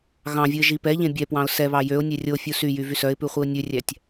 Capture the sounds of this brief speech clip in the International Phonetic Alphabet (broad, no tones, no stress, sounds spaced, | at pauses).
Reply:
ɣ ɑ̃ vʲ u ɪ̯ ʒ i p ɛ ʎ ẽ bʲ ɛ p w ɑ̃ ʊ̯ s ɛ β ɑ j ø ʊ̯ nʲ e rʲ o fʲ u s y j y v y s œ ɪ̯ p ʉ χʷ i ʊ̯ nʲ ʉ rʲ æ tʲ